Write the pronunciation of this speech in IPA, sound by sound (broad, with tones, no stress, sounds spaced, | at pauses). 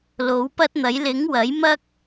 l o˨˥ w p ɐ˥ t̚ n̪ ɐ˨˥ j l ɪ˨˥ ŋ w ɐ˨˥ j m ɐ˥ k̚